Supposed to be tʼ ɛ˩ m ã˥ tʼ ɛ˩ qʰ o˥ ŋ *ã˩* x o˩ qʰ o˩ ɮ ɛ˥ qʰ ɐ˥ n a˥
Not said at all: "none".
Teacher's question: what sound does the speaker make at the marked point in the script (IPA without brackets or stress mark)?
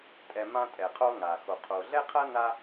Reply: a˩